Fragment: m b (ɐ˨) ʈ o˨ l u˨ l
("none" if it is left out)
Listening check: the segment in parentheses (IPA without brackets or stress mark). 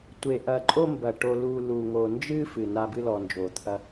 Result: ɐ˨